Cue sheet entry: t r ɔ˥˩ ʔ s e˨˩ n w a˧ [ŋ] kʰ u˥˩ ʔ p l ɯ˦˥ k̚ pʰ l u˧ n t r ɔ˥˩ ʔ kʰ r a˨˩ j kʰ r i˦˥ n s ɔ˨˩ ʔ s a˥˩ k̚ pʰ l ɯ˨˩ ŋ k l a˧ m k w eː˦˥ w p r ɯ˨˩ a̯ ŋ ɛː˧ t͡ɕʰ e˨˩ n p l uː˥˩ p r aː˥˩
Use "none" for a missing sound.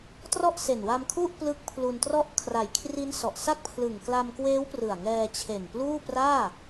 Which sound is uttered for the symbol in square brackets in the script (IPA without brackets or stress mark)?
m